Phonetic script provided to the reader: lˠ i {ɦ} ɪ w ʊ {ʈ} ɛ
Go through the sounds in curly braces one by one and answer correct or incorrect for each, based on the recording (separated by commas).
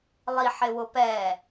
incorrect, incorrect